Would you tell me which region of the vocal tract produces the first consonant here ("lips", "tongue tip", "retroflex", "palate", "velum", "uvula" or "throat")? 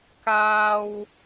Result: velum